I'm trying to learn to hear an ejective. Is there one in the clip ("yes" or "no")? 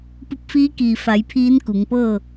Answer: no